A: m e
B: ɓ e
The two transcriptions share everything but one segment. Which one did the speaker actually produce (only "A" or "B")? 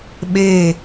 B